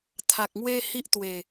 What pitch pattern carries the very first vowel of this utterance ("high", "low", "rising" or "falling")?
low